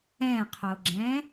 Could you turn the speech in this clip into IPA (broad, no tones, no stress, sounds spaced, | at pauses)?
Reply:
ɛ̃ qʰ o ɡ͡ǁ ɛ̃